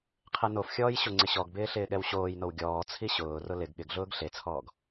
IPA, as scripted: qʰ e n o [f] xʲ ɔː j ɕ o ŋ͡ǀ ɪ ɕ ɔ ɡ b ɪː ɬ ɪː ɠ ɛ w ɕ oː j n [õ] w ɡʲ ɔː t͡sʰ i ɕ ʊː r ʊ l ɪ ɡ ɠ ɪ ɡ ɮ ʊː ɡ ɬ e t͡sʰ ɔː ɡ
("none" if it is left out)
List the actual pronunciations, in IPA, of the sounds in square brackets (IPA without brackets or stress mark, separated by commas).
f, o